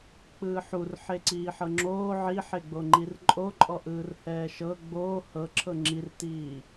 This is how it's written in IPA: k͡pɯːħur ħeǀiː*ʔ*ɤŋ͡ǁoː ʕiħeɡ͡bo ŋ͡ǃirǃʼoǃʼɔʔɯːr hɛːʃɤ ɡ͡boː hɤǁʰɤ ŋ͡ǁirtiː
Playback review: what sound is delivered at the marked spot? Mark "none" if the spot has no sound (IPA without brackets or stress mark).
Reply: ħ